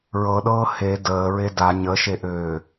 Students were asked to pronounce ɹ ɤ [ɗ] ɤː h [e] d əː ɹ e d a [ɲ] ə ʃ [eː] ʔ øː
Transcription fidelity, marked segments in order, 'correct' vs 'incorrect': correct, correct, correct, incorrect

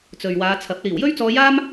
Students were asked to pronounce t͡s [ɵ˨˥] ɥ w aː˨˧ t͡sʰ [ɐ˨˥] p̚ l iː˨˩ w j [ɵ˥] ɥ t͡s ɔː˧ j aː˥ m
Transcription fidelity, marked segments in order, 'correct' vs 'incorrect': incorrect, correct, correct

